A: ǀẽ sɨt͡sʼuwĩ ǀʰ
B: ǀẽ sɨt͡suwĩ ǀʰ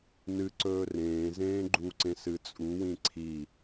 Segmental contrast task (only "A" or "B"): A